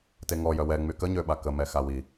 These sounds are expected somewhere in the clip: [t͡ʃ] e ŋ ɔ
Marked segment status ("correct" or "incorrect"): incorrect